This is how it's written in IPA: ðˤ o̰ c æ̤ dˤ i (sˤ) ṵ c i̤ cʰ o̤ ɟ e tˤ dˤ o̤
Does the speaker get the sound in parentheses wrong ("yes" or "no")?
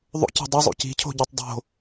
yes